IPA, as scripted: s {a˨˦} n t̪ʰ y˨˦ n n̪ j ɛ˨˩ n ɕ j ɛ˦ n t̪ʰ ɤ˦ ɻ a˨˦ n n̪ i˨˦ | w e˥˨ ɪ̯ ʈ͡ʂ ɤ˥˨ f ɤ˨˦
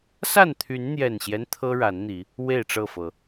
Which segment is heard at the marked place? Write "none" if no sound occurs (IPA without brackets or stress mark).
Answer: a˥˨